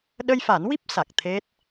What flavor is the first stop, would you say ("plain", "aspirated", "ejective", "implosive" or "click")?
implosive